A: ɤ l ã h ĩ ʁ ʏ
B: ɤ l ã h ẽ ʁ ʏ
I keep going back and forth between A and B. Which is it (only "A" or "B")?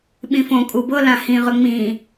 A